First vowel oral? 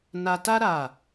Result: yes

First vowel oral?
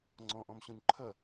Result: no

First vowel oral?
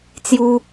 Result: yes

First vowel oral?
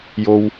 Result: yes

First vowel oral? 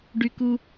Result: yes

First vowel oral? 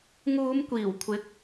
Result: yes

